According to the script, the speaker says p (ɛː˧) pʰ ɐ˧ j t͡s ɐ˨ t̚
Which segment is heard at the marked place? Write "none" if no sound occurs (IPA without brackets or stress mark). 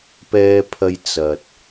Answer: ɛː˧